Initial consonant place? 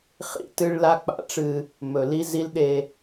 uvular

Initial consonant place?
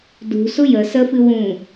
alveolar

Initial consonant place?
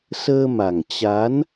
alveolar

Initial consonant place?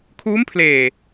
velar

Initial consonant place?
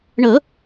retroflex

